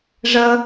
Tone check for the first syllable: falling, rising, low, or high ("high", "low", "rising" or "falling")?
high